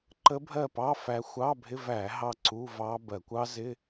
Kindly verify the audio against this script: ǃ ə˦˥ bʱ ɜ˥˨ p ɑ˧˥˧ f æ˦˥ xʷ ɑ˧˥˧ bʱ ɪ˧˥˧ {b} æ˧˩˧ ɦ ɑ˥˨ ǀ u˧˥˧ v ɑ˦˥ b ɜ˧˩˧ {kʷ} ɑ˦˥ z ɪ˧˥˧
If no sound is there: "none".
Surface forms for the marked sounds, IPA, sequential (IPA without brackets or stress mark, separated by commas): v, kʷ